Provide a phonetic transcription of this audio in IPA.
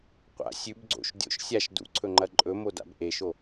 qʷ a̰ sʲ ʉ b ɡ͡ǀ o̰ ʃ dʲ o̰ ʃ sʲ a ʃ d ṵ ǀʰ ɵ ŋ͡ǃ ɐ ǃʼ ɵ m o d a̰ b ʔ e ʃ o

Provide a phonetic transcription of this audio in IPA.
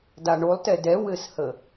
d a ɳ o lˠ t ɛ d ɛ w ɘ s h ə

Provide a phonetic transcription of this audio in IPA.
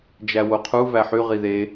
d͡ʒ æ w o qʰ u v æ ħ y ʁ i ð e

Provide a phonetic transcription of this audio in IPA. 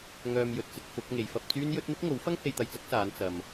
ŋ œː˨ m j ɵ˨ t̚ t͡s ɪ˧ k̚ f ʊ˨˥ k̚ ŋ e˨˧ j f ɐ˧ p̚ t͡s yː˥ n j ɵ˥ t̚ n̪ ɪ˥ k̚ ŋ o˨˥ w f ɐ˥ ŋ h e˧ j t̪ ɐ˧ j t͡s ɐ˥ k̚ s aː˨˧ n t͡s ɐ˨ m

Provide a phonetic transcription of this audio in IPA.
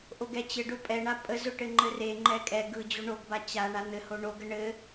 ʔ o ɡ ɛ t͡ɕ ɘ ɖ ʊ pʼ ɛ ɳ a pʼ ə z ʊ ʈ ɘ ŋ͡ǃ ɘ r e ŋ͡ǃ ɛ kʼ ɛ ɡ ɯ d͡ʑ o ɳ o ɡ b a t͡ɕ a ɳ a n̪ ɘ h o ɳ o ɡ ə ɳ ɘ

